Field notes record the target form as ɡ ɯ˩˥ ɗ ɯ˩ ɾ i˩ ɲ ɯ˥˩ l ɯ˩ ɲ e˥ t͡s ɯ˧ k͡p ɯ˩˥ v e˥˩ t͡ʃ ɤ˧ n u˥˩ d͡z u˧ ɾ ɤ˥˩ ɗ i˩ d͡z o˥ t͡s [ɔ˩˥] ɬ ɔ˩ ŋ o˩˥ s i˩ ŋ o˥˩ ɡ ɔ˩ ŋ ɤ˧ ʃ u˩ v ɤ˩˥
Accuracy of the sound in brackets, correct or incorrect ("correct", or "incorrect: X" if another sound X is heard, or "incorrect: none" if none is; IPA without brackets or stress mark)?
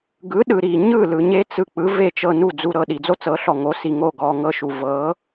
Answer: incorrect: ɤ˩˥